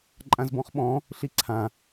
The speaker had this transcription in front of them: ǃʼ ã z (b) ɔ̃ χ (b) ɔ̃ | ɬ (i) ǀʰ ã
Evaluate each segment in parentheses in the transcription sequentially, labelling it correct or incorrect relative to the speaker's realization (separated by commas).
correct, incorrect, correct